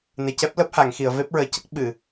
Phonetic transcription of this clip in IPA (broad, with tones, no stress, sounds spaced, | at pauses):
n e˨˩ c ɛ˦˥ p̚ l əː˦˥ p̚ h a˨˩˨ ŋ x i˨˩˨ ə̯ v e˦˥ p̚ ɹ əː˨˩ c ə˦˥ k̚ ɓ ɨ˨˩˨